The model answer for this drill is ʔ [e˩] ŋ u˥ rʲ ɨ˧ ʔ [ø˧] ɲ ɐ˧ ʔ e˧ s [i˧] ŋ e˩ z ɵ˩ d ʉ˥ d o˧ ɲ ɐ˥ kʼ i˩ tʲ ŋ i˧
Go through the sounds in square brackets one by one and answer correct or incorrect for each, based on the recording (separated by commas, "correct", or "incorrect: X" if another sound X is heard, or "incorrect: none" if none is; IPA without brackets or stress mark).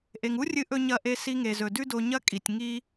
correct, incorrect: ɵ˧, correct